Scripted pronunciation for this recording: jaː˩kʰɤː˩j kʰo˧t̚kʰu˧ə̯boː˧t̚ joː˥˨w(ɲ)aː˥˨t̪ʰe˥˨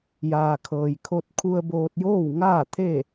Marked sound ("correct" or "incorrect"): incorrect